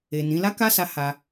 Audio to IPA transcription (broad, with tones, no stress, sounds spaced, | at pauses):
e˨ n ĩ˨˦ l a˦ k a˦ s a˦ h a˧